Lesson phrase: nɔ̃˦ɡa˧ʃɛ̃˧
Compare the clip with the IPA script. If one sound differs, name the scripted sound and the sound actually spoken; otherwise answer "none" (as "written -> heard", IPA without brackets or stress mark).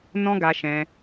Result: none